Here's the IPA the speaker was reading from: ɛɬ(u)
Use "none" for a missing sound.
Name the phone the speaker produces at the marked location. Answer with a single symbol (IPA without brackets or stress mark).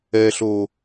o